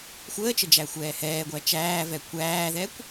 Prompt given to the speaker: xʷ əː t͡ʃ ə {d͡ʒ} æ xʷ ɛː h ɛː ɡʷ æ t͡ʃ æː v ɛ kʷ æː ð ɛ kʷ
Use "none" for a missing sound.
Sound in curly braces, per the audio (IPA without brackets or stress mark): d͡ʒ